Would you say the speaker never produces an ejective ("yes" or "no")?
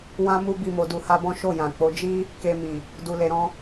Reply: yes